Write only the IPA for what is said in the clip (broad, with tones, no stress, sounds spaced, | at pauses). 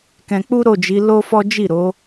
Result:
k ɛ̃˧ k͡p u˦ ɾ o˦˨ d͡ʒ i˨˦ l o˦ f ɔ˦ d͡ʒ i˦˨ ɾ o˨˦